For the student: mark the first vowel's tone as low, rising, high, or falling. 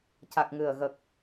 low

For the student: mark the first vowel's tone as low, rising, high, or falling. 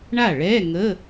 falling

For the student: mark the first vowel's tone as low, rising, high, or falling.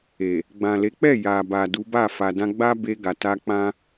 low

